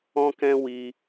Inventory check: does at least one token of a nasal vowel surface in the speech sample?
yes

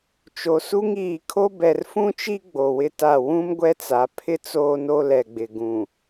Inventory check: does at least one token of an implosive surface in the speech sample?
no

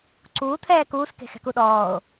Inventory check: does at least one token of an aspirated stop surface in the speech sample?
yes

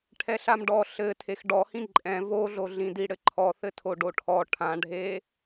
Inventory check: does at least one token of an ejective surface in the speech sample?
yes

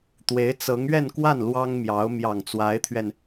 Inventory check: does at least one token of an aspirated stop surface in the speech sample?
yes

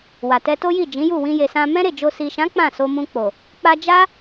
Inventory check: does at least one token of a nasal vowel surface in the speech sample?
yes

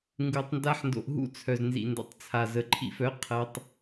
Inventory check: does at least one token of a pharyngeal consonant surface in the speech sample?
yes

